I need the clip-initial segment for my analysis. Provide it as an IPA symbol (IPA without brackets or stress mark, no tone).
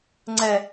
ŋ͡ǀ